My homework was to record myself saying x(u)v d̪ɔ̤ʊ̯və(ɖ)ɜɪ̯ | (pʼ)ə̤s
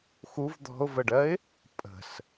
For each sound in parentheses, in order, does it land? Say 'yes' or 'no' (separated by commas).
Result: yes, yes, yes